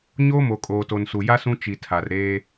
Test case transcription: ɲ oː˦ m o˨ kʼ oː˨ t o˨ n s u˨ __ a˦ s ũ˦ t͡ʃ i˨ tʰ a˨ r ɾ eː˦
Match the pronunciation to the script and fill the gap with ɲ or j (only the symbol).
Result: j